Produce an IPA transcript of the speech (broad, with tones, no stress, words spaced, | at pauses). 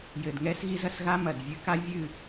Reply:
jɘ˨dŋɛ˦s ɣi˦zɐ˧s ɣa˦mɐ˨d vʲɨ˧ka˦vʲɨ˦˨